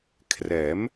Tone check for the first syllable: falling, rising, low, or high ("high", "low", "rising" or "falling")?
rising